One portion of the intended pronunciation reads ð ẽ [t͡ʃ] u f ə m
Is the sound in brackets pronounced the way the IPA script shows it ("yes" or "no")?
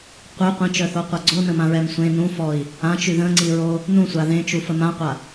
yes